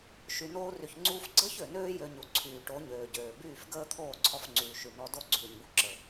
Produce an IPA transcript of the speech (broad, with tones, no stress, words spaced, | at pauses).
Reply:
ʃy˨noː˧ry˨çŋ͡ǀuː˧f ɡ͡ǀəː˦çø˨nøː˦ jø˧ɲu˨ǀʰyː˨ ʈo˨˦ɲøː˨ ɟøː˨ byː˦˨fɡəː˦ t̪ʰoː˦˨ǀʰɔ˧fŋ͡ǀyː˨ ʃy˨nɔ˦ do˦˨ɡ͡ǀyː˨ɲbu˧ ǁə˨